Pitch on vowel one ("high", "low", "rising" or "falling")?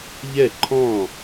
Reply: falling